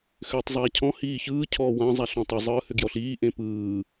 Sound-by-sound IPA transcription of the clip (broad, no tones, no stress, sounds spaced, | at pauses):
x ʏː tˤ zˤ aː cʰ ɔ̃ h iː ç ɯː cʰ ɔː w ã zˤ a ɬ ɔ̃ tˤ ʏ zˤ ɯː h ʏ ɡ j ɔ ɬ iː ʔ ẽ p ɯː